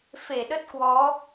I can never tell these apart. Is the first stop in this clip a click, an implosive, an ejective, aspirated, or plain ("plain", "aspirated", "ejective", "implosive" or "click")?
implosive